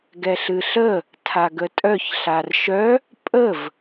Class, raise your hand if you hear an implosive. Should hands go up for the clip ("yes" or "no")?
no